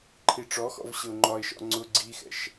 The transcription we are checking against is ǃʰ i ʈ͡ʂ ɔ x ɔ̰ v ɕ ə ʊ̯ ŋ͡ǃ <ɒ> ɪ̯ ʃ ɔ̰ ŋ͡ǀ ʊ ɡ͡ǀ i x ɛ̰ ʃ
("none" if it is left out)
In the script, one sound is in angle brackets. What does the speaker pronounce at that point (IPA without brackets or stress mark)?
ɒ